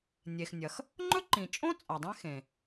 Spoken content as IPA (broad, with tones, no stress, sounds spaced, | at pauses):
nʲ e˩ x nʲ ɐ˩ x | ŋ͡ǃ ɵ˥ ǃ ĩ˩ t͡ʃʼ õ˥ t͡sʼ a˩ dˤ ẽ˥ x ẽ˩